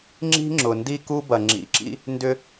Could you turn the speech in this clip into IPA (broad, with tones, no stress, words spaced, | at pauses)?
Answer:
ŋ͡ǁi̤˦ŋ͡ǁʊ˨ndi˦ ku˦bɐ˨ ŋ͡ǁḭ˨ǁḭ˦ | ndʏ˦